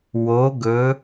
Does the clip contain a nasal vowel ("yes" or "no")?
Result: no